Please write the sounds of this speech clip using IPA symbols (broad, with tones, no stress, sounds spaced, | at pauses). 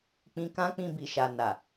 k͡p ĩ˧ k ã˦ k͡p ĩ˧ b i˨ ʃ a˨ n a˨